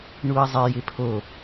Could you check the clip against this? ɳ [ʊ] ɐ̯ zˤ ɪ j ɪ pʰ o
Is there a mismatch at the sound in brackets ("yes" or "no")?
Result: yes